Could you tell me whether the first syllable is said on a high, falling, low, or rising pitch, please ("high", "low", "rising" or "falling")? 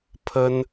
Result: high